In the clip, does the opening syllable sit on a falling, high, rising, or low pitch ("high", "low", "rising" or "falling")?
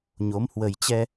rising